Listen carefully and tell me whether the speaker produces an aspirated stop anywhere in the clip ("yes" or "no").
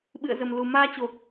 no